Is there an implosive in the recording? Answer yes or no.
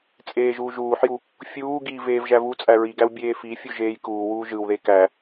no